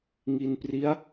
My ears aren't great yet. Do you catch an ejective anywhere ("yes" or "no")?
no